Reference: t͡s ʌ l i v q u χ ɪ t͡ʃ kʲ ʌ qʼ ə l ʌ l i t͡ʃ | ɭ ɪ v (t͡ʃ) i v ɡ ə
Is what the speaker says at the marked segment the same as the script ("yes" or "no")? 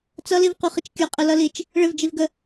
no